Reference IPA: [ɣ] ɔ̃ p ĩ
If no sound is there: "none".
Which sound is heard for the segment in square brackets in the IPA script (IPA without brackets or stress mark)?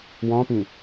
w